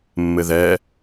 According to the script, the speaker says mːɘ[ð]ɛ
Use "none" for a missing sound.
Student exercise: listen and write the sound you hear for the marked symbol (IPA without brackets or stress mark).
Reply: ð